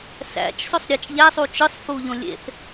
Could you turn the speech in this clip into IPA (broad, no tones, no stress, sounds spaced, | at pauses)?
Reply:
s æ̰ t͡ʃ s o sˤ ɾʲ ɑ t͡ʃ ʎ æ sˤ u t͡ʃ ɯ sˤ f u ʎ õ lʲ ḛ θ